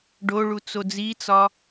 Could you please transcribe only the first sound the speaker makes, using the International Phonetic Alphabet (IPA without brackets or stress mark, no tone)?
ɖ